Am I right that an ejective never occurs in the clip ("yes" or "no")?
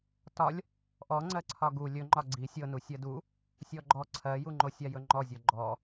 yes